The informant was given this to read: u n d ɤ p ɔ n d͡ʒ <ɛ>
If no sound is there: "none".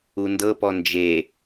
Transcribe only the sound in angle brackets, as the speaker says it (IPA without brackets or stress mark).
e